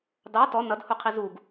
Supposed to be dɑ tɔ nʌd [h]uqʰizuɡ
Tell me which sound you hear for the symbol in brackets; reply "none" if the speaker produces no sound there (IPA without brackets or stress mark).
h